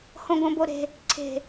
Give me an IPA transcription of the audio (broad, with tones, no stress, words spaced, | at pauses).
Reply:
hõ˧ɡõ˧ bo˧ ɾe̤˧ | ǀʰe̤˨˩